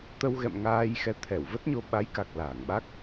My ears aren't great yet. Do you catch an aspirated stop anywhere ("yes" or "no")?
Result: yes